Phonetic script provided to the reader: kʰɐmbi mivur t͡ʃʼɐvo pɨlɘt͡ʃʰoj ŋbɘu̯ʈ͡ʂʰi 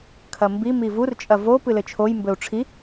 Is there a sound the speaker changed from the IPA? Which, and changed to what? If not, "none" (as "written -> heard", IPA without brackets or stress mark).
ŋ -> m